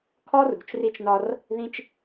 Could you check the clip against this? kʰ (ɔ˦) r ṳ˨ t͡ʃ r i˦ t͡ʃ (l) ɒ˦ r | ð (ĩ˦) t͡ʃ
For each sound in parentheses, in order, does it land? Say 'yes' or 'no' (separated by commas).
yes, no, yes